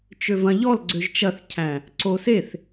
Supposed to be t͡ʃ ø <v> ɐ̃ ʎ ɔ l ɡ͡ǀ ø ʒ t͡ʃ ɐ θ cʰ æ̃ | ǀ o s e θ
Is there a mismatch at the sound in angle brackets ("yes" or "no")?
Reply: no